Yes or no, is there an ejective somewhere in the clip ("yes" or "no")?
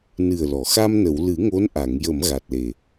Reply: no